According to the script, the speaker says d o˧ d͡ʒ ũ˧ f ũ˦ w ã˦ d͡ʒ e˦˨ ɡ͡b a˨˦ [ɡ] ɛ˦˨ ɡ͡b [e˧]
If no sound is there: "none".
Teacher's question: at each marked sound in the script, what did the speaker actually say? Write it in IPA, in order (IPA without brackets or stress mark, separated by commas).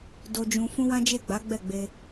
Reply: ɡ͡b, e˧